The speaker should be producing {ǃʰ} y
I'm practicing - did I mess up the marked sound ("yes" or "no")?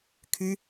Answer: yes